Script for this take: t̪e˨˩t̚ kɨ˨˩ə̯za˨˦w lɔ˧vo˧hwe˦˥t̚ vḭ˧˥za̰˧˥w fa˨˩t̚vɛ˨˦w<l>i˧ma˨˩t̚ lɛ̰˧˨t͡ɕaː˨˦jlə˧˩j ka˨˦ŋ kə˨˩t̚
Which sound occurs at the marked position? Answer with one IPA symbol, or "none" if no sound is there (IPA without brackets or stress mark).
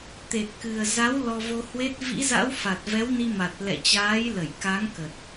n